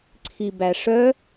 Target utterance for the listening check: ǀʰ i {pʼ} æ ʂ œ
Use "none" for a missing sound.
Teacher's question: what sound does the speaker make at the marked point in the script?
b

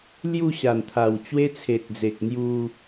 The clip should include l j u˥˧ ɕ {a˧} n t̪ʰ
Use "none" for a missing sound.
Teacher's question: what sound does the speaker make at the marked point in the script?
a˨˩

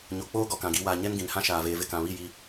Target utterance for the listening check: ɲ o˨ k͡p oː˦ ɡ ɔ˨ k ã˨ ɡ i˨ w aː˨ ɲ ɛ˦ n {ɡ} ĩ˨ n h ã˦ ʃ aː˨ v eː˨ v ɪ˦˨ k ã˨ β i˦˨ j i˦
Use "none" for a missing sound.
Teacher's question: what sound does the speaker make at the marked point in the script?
ɡ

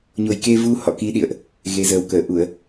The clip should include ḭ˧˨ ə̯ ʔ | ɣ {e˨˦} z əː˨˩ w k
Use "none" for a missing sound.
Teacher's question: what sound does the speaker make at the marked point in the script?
e˨˦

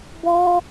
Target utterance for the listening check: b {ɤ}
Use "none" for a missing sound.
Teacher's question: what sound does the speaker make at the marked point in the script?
ɔ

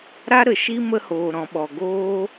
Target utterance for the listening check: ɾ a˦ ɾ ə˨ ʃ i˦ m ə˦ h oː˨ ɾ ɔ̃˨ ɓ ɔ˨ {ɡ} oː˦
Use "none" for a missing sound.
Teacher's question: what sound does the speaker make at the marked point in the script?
ɡ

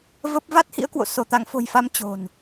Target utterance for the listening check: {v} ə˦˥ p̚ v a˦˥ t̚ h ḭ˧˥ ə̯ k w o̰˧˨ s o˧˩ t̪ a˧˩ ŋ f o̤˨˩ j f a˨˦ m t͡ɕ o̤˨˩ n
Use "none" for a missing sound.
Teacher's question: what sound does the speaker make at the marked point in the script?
v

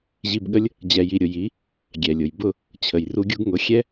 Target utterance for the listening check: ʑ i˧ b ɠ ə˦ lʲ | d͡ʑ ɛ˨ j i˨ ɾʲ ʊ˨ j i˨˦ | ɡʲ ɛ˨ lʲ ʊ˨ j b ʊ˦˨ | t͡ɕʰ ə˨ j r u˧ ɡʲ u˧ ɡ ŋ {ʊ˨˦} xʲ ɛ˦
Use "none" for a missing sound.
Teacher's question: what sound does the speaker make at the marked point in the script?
ʊ˨˦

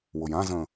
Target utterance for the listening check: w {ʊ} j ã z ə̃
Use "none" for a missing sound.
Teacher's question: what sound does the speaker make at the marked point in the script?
ʊ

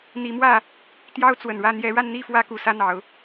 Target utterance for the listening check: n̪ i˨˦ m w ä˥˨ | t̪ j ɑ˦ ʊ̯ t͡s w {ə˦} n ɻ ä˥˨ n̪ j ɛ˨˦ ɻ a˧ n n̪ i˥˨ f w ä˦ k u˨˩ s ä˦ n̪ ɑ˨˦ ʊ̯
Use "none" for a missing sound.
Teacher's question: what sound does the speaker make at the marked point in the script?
ə˨˩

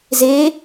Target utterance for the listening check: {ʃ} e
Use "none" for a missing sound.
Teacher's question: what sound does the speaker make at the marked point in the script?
z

